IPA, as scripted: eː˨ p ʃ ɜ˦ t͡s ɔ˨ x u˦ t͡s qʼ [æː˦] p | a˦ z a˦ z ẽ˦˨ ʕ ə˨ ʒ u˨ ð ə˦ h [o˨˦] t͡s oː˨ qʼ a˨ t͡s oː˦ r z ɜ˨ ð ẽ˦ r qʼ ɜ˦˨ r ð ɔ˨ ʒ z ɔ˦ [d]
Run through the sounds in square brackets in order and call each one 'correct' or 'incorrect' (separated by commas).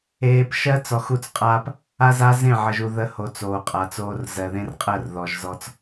incorrect, correct, incorrect